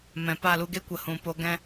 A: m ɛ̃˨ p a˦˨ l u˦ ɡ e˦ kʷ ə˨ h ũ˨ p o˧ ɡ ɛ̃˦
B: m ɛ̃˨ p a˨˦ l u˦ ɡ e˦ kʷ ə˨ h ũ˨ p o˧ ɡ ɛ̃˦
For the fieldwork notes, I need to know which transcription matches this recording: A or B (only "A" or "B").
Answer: A